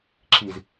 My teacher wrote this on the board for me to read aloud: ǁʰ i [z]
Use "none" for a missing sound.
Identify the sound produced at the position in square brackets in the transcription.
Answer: z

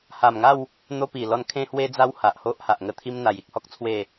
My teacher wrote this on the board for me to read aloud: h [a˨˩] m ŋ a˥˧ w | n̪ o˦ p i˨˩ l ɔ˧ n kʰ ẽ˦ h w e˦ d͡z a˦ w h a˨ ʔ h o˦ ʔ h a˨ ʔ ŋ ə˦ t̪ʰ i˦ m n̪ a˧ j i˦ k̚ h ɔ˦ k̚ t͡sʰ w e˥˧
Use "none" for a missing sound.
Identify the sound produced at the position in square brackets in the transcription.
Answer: a˨˩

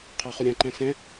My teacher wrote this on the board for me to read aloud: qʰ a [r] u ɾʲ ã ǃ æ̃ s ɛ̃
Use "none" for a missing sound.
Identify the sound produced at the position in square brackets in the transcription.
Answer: χ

